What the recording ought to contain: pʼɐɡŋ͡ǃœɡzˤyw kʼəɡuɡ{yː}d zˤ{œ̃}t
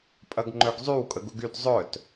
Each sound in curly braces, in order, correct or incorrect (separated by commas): incorrect, incorrect